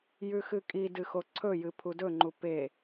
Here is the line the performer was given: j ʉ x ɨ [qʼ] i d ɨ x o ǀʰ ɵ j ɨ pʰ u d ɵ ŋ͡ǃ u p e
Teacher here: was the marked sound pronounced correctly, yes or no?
no